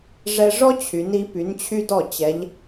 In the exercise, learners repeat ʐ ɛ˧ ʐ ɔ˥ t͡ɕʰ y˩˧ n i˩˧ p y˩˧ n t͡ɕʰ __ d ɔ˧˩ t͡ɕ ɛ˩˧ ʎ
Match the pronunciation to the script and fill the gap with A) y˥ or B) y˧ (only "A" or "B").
B